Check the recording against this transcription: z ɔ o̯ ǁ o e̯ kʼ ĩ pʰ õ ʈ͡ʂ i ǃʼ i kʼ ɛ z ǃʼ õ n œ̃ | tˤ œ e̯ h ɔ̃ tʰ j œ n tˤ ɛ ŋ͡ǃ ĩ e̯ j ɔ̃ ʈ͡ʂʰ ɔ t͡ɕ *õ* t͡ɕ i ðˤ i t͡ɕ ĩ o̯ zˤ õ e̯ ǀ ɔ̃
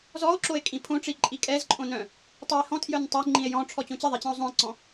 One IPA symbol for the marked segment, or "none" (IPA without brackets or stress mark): õ